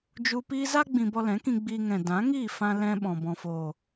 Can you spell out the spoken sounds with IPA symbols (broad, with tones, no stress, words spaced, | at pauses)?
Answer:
d͡ʒu˧ piː˦ za˦ ɡ͡bĩ˧bɔ˧lɛ̃˨˦kĩ˧ ɡ͡biː˧ŋɛ̃˨ dã˨˦ŋiː˦˨ fã˦lɛ̃˦ɓɔ̃˨ bɔ̃˨foː˨